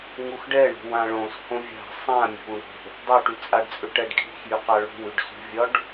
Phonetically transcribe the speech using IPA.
ŋ u x ɖ ɛ ɳ o̤ w ã ɭ õ s h õ vʲ a̤ sˤ ã mʲ o̤ w ɳ o̤ | dˤ u ʈ y t͡sʼ a ɖ t͡sʼ ʏ ʈ ɛ ɖ kʼ i̤ x j y q a ɭ o̤ w y ɖ s ṳ vʲ ɒ ɖ

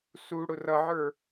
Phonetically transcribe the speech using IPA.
s u ɽ ʊ r ʌ ʕ ə˞

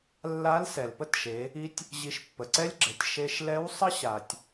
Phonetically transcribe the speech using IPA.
lː a˧˥ l s ɛ˩ l p ə˥ t ʃ e˩˧ | i˧ tʲ | ʑ i˧ ʃ pː ə˩ ǀ ɛ˥ lʲ ɡ͡ǁ ɛ˩˧ tʲ ʃ e˧ ʃ l ɛ˧˥ w sˤ ə˥ ɕ a˩ tʲ

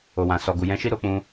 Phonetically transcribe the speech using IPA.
o˨ w ã˨ s ɔ˨ ɡ u˨ j ɛ̃˧ ʃ i˦ ɾ o˧ k͡p ũ˧

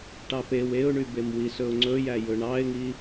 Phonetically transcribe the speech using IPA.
ʈ ɑ p e w e ʊ̯ ɳ y b e m w i s ɵ ʊ̯ ŋ͡ǀ ɵ j æ j ɵ ɳ ɑ ɪ̯ ŋ i

